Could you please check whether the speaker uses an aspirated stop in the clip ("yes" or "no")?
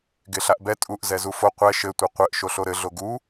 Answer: no